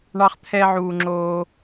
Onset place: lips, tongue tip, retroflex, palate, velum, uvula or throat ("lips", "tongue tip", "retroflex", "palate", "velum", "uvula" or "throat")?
retroflex